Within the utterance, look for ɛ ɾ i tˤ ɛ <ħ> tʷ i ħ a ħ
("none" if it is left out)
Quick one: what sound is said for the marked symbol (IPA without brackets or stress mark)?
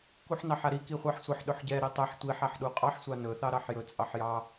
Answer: ħ